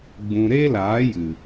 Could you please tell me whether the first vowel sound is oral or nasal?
nasal